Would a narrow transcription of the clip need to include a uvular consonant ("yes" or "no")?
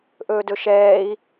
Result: no